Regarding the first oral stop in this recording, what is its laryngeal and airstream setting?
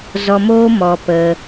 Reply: plain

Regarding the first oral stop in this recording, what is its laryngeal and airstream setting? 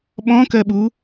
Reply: implosive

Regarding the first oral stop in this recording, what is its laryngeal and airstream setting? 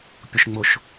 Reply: plain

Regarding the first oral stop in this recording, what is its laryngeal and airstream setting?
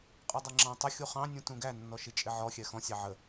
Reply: ejective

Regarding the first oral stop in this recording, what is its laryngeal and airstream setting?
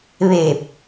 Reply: plain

